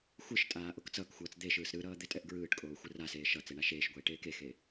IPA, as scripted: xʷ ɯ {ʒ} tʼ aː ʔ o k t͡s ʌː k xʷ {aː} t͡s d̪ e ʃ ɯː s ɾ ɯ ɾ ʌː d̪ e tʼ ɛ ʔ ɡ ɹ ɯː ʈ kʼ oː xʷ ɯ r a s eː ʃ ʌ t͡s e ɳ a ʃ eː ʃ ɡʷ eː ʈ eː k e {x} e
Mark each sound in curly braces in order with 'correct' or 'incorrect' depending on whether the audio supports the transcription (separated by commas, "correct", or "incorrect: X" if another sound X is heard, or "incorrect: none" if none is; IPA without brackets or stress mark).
incorrect: ʃ, incorrect: ʌː, correct